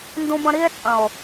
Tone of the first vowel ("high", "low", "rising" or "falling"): high